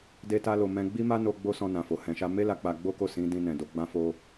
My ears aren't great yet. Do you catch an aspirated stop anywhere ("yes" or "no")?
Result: no